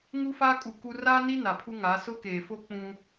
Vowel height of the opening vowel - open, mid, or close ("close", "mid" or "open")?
close